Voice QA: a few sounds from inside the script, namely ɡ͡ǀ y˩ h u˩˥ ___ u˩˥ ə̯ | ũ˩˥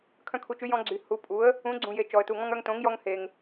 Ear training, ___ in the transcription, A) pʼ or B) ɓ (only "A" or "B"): A